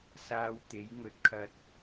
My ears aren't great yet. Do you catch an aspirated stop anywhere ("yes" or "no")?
yes